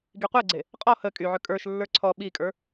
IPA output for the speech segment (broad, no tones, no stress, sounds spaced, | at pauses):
ɡ i qʷ e ɡ͡ǀ e | qʼ ɔ h ə kʼ y ʕ ø kʼ ə˞ ʃ lː ə˞ ǀʰ ɔ ɓ i kʼ ə˞